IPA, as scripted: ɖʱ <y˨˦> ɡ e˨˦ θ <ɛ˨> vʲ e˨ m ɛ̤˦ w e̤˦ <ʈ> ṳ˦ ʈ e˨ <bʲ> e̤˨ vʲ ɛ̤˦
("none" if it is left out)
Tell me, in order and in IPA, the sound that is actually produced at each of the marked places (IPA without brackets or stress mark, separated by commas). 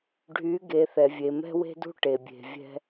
y˨˦, ɛ˨, d, bʲ